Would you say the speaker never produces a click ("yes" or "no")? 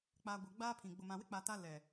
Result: yes